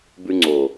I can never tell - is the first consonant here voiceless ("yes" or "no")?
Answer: no